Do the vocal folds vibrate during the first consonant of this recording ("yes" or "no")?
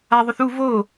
yes